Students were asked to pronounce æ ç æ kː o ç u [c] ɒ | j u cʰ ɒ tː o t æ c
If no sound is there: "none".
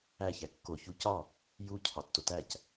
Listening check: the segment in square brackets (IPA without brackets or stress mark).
c